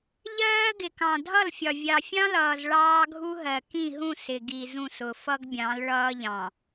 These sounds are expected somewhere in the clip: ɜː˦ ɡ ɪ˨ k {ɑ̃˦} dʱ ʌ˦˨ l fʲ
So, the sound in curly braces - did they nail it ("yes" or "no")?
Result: no